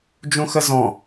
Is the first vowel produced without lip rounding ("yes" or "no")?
no